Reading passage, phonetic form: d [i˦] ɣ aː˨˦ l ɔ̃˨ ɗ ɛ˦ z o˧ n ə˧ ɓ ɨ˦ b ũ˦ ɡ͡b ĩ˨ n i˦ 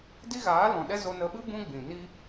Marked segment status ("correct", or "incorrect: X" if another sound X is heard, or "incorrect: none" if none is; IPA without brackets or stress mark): correct